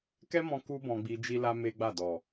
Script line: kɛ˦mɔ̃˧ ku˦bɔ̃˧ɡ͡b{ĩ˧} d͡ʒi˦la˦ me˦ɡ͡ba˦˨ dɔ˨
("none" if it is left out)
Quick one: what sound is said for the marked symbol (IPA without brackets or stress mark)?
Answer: i˧